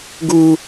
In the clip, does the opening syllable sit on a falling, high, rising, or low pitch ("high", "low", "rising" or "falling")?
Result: high